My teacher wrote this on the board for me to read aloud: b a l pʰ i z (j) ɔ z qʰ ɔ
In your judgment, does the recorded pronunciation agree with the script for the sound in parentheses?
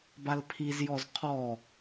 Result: yes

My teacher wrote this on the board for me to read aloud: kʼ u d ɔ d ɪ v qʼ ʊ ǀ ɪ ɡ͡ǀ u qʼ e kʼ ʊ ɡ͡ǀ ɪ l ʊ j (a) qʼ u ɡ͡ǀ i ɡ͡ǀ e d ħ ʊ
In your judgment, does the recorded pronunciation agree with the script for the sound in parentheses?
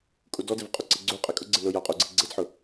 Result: yes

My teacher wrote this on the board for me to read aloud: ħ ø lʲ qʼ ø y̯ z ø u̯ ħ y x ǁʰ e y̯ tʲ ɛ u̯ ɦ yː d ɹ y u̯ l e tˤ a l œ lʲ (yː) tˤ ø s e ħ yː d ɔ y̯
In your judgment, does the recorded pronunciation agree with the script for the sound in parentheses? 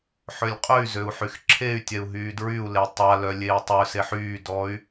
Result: no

